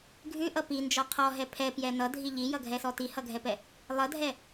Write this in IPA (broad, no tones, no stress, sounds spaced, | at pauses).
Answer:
ɡʱ ʉ ʔ ʌ p i n d͡ʒ ɔ qʰ ɔ ɦ ɛ pʰ ɛ p j ɛ n ʌ dʱ i ʎ i j ʌ ɡʱ ɛ s ɔ t i h ʌ ɡʱ ɛ p ɛ | lˠ ʌ dʱ ɛ